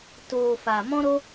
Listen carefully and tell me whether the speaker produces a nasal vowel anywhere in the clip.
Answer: yes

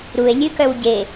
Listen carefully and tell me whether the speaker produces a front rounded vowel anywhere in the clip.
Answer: yes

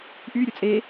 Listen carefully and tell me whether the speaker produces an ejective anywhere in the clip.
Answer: yes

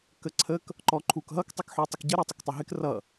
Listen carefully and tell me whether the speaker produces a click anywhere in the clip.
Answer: yes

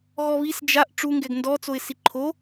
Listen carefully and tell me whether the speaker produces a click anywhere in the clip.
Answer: yes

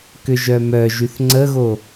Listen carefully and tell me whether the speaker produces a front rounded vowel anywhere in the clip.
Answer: yes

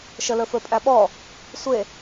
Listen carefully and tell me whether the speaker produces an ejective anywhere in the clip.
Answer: yes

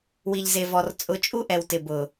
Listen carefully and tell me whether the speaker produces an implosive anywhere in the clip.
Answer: no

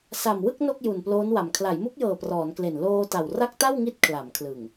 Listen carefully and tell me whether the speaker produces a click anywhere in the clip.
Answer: no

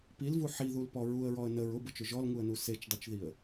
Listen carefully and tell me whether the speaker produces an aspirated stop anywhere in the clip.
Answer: no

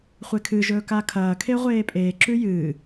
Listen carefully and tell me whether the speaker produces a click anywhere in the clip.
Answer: yes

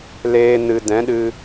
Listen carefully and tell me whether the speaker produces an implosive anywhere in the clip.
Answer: yes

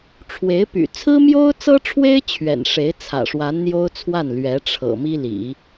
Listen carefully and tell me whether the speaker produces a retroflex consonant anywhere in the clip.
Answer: yes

